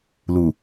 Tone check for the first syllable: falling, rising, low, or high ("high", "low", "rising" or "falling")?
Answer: low